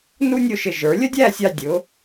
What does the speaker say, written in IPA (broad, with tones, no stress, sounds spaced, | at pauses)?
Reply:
n u˥ nʲ ʊ˥˧ ʃ ɪ˧ ʒ ə˞˩˧ lʲ ə˥ dʲ æ˥˧ sʲ ɑ˧ dʲ ʊ˩˧